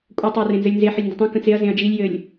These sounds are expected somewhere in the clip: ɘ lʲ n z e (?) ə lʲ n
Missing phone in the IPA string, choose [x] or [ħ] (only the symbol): ħ